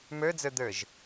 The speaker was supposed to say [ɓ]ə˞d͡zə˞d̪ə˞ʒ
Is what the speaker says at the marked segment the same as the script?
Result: no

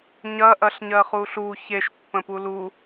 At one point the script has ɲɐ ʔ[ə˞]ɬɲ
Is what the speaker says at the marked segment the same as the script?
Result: no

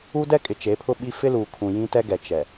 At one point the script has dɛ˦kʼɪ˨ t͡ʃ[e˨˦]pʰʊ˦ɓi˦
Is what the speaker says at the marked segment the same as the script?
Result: yes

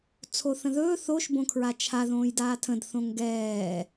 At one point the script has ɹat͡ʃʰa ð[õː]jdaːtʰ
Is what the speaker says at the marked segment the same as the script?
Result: yes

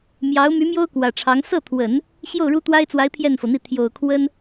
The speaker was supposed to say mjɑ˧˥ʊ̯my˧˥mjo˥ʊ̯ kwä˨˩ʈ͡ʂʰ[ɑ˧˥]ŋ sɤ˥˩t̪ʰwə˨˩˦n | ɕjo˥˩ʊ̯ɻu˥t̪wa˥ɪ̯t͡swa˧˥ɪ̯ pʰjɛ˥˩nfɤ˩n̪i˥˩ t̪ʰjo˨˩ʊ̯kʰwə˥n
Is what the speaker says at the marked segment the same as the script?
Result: yes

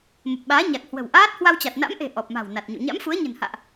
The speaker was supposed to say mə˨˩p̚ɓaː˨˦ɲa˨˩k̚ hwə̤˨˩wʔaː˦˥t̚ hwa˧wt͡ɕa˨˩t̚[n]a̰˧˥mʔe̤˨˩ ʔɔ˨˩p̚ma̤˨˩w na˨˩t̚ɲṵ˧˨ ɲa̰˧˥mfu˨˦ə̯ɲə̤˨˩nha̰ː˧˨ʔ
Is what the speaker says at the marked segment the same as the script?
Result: yes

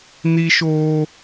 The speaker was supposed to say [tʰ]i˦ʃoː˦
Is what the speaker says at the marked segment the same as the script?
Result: no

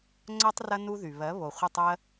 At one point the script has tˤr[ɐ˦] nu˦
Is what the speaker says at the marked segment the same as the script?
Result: yes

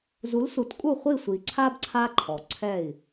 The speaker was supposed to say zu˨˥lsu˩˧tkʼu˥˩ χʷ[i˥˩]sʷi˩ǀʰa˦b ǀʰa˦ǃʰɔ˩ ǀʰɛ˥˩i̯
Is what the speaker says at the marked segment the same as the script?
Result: yes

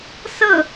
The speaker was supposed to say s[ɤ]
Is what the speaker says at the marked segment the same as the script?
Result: yes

